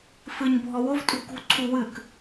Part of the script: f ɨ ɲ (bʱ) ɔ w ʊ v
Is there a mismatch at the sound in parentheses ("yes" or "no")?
no